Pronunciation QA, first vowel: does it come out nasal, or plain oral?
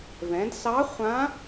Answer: nasal